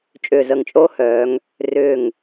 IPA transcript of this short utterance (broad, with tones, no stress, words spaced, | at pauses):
t͡ʃʼʏː˧˩zə˧˩ŋt͡ʃʼoː˥hœː˩˧ŋ | rʏː˧˩ŋ